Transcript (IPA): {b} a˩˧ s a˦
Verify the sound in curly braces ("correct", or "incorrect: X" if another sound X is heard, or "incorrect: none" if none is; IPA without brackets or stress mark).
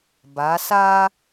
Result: correct